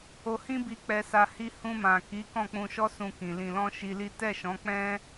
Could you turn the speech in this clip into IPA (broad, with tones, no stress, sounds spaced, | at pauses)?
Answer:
o˧ h ĩ˦ b i˧ k͡p ɛ˧ s a˧ h i˧ h ũ˧ m ã˨ k i˨˦ k ɔ̃˦˨ k͡p ũ˧ ʃ ɔ˦ s ũ˧ k ĩ˨ l ĩ˨ l ɔ̃˧ ʃ i˧ l i˦ t ɛ˦˨ ʃ ɔ̃˨˦ k͡p ɛ̃˦